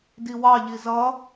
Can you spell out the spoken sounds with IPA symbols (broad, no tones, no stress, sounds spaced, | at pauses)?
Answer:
d i w ɑ ʎ i z ʌ